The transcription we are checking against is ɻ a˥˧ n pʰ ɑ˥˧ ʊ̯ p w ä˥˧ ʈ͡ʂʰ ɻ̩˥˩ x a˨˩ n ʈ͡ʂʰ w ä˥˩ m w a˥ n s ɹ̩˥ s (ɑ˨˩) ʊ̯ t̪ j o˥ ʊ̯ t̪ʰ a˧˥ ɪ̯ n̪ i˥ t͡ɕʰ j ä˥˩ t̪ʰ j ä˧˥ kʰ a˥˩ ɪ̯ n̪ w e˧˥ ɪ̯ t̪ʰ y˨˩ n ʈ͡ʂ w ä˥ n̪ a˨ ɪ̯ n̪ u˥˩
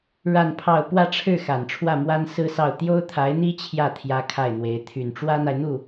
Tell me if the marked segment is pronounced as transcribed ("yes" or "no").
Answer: no